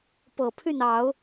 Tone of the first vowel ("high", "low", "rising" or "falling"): low